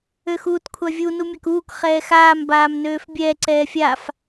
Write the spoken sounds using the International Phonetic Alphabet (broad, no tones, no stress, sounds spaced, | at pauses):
ø x uː t kʷʰ a vʲ u n u mʲ a k uː k χ ɛː x aː m b aː m n øː f bʲ ɛ ǀ ɛː fʲ a f